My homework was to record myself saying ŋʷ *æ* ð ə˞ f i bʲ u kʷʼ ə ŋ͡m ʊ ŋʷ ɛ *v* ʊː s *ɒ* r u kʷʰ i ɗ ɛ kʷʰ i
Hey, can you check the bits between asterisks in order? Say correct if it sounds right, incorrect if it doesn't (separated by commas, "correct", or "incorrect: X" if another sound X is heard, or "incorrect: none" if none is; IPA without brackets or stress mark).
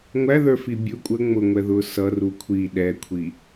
correct, incorrect: ð, incorrect: ʌ